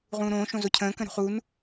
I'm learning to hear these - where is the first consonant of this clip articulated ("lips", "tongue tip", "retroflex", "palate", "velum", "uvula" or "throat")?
uvula